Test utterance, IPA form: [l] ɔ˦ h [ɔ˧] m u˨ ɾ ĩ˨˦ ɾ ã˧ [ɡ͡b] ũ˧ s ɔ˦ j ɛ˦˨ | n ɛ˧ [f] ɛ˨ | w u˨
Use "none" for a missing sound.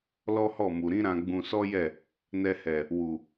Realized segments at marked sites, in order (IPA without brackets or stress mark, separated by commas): l, ɔ˦˨, ɡ͡b, h